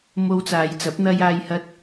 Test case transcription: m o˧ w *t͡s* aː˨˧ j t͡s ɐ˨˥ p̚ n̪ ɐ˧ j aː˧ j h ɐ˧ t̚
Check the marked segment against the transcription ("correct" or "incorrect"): correct